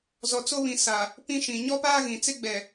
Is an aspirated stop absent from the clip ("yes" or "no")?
yes